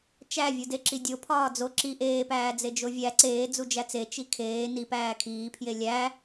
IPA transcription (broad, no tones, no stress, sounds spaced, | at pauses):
t͡ʃ æ vʲ u d e ǁ i dʲ o pʰ ɒː d͡z o ǁ i ʔ eː p æː d͡z e d͡ʒ o vʲ æ ǀ eː d͡z u d͡ʒ æ t͡s e t͡ʃ i kʰ eː n i p æː kʰ iː pʰ j e lʲ æ